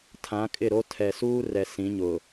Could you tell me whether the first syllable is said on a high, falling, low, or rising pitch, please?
rising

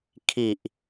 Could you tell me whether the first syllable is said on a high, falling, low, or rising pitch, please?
low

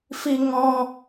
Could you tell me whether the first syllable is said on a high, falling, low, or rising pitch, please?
high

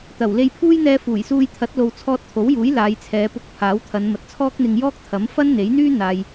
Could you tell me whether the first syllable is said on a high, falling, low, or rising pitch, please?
low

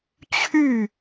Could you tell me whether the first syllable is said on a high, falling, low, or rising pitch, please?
falling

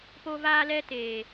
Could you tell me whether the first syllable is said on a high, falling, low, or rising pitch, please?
high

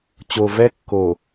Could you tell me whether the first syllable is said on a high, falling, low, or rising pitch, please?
low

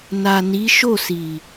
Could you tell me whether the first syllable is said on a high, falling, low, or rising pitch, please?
low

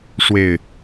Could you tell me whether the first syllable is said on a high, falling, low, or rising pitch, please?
low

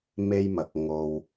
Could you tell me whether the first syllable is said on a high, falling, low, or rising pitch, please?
high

